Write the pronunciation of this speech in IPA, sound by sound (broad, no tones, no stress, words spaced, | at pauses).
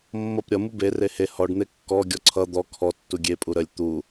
mːʌp ɾʲʌ mube rehe hɔɖ n̪ekːɔ ɡʲɔǀʰʌ d̪ɔ kʰɔ tːuɡʲe pʼuɾəlʲ t̪u